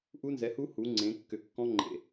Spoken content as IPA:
ʔ u˦˥ n z ɛ˨˥ h u˦˥ h u˨˥ ŋ͡ǀ ẽ˨˥ kː ʏ˧˩ kː ɔ̃˦˥ ŋ͡ǃ ḛ˧˩

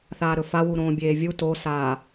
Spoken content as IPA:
θ aː ɾ ɵ f a w u ɾ õː bʲ eː vʲ u t o s aː

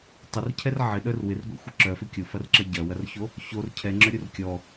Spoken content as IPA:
tˤ ɪ r cʰ ɛ r ʕ ɪ ɗ œ r w ɪ r ɡʷ ḛ xʷ ɪ ǁ œ f ʏ kʲ o f ɐ r ǁ ɐ ɟ ɐ w ɐ r ç o | ç o r cʰ ɛ ŋ͡ǁ œ ɾʲ u r kʲ ɔ

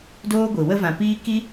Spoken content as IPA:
d oː˦ ɡʷ i˨ w ə˦ v ã˨ p iː˦ k i˦

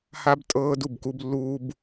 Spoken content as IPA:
h a˦ b tʼ ɤː˦ d u˦˨ b k u˦ b lː uː˦ b

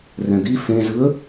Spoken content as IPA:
r ɛ̃ d̪ i f ẽ z ɯ ə̯

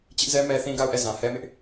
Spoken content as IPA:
t͡ɕ ɪ˦ ʔ z ɛ˦ m ɛ˦ θ ĩ˦ ɡ a˦˨ ʊ̯ ʔ ɛ˦˨ z ã˨ h ɛ˦ m ɪ˦ ʔ

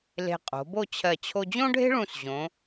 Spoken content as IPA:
l e̤˧ qʼ o̤˩˧ b o˥˧ t͡ɕʰ ɜ˧˩ t͡ɕʰ o˧ d͡ʑ õ˥ ɖʱ e̤˥ ɭ ũ˧˩ s ʑ õ˩˧

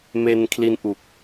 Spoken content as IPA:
m e˧ n kʰ l i˧ n ʔ u˨˩ k̚

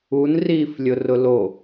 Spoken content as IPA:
u n r iː f lʲ ʊ r ʊ l o

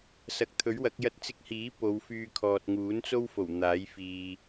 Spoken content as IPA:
s ɐ˨˥ k̚ t̪ʰ ɵ˨˥ ɥ w ɐ˨˥ k̚ j ɐ˧ t̚ t͡s ɪ˧ k̚ h iː˨˥ p o˨˧ w f yː˧ kʰ ɔː˨ t̚ ŋ uː˨˥ n t͡s o˥ w f o˨˩ w n̪ aː˨˥ j f iː˨

